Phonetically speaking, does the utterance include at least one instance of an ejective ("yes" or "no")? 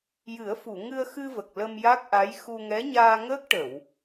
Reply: no